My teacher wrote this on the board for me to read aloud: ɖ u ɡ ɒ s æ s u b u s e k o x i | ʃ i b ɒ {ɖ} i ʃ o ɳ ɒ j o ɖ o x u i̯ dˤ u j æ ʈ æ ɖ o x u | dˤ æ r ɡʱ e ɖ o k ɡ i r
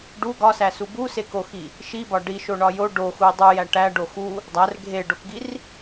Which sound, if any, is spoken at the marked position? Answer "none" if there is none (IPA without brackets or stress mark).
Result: ɖ